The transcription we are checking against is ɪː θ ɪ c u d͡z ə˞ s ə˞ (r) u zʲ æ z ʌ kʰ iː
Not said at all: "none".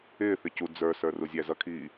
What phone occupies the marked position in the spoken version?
r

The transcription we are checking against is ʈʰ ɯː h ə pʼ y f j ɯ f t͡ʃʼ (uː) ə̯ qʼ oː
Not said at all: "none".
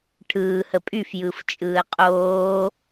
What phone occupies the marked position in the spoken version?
ɯː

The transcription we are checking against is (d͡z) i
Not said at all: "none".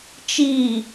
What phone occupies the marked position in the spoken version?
t͡ʃ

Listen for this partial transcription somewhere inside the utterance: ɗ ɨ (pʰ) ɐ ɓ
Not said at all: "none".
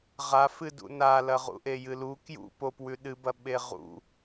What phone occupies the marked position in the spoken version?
b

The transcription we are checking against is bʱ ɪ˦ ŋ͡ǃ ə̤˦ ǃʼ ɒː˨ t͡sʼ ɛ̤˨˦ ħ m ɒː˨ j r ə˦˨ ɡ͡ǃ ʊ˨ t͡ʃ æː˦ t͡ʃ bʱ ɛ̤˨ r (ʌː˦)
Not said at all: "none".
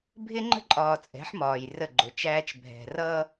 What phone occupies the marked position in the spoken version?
ʌː˦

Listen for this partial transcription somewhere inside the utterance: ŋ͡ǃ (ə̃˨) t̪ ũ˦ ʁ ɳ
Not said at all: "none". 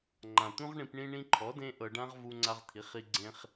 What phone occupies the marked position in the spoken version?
ã˨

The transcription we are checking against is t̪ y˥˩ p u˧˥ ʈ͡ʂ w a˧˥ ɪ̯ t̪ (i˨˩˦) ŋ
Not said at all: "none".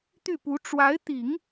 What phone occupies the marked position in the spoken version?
i˨˩˦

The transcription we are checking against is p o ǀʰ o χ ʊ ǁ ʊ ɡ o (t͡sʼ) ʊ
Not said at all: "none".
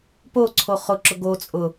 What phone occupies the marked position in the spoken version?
t͡sʼ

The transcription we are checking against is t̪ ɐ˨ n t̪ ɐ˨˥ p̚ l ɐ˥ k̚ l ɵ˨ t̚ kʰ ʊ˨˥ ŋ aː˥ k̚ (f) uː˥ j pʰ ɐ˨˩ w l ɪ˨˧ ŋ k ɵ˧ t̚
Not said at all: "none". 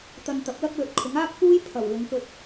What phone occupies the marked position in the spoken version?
f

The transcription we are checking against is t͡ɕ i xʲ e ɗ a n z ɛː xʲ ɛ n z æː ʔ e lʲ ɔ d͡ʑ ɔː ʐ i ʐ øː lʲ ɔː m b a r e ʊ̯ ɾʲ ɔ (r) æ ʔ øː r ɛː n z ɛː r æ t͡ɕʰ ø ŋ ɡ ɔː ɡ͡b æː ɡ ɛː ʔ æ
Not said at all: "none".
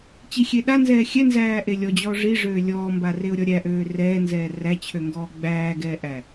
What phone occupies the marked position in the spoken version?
ɾʲ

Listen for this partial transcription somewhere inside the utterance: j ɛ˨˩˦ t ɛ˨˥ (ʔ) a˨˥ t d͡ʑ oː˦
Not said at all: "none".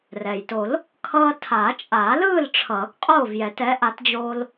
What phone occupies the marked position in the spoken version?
ʔ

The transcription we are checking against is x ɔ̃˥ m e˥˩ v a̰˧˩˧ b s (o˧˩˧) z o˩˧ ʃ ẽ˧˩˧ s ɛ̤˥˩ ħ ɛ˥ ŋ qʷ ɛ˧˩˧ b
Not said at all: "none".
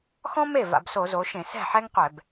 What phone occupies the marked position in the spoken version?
o˧˩˧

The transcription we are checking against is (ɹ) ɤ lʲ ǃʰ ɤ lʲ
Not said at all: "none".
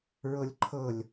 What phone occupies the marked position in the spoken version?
ɹ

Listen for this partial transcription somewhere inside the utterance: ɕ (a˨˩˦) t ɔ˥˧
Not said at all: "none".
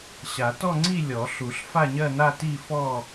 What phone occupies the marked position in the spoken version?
a˨˩˦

